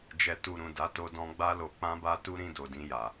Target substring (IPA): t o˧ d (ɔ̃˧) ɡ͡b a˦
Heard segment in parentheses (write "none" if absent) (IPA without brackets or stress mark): ɔ̃˧